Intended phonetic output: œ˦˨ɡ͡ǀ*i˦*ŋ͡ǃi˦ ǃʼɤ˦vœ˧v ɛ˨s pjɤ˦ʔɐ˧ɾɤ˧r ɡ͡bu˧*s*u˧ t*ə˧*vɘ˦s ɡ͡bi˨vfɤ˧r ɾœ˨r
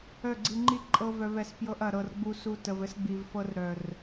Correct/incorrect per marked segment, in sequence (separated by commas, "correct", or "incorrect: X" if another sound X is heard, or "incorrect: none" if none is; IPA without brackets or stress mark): incorrect: i˧, correct, correct